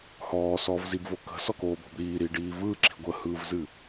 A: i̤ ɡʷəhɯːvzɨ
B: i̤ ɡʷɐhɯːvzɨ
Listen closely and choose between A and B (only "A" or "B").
A